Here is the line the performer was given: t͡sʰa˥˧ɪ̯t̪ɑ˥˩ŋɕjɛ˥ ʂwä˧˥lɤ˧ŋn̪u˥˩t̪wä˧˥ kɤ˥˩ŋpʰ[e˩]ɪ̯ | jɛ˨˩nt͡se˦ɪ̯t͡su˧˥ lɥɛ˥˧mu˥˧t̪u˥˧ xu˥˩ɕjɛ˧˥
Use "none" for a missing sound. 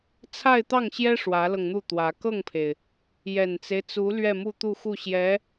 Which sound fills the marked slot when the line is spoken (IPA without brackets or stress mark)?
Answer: e˩